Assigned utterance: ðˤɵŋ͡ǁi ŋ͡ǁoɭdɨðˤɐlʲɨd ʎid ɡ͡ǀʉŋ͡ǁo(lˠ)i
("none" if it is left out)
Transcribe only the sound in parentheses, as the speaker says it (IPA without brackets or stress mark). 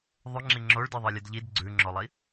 lˠ